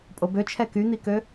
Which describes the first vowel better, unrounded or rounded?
rounded